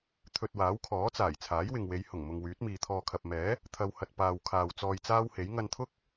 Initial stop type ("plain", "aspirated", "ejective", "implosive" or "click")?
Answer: aspirated